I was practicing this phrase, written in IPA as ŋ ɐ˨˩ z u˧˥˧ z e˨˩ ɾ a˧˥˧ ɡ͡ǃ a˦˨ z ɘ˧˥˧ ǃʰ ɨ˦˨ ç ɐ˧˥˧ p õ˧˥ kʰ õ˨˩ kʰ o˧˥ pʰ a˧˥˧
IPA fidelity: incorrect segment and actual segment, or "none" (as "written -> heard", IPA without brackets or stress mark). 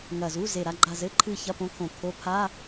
none